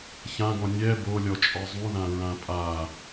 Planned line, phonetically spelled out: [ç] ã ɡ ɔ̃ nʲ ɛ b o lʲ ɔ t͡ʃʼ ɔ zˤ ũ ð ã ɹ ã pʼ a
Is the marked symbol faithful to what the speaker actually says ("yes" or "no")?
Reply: yes